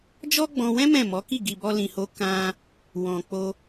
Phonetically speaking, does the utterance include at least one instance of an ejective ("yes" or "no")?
no